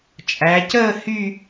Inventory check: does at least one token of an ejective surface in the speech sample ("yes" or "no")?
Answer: yes